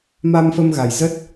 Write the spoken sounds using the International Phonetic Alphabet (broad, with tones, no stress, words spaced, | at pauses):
ma˧mfə˧m ɣa˨˩jzə˦˥t̚